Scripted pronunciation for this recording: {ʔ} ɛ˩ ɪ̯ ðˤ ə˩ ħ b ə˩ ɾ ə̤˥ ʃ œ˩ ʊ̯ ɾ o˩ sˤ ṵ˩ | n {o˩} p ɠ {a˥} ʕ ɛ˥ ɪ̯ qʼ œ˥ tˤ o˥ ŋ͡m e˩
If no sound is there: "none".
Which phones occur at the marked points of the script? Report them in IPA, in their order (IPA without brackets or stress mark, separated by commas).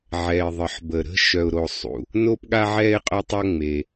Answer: ʕ, o˥, a˥